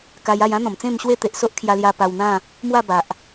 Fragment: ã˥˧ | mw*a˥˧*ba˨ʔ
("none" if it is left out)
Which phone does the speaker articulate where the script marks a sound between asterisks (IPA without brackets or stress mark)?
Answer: a˥˧